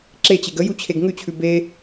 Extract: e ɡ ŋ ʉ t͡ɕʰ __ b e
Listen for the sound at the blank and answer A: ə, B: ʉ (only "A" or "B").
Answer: B